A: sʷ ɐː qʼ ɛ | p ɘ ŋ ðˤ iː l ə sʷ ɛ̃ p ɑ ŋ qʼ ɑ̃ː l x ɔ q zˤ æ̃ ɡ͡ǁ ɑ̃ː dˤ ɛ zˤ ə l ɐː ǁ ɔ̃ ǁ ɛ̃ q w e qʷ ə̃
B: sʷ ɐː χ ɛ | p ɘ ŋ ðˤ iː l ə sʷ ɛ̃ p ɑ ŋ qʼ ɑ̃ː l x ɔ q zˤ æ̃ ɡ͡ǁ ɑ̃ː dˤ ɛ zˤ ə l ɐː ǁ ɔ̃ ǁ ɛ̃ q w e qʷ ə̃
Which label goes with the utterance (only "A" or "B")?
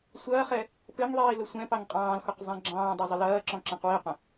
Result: B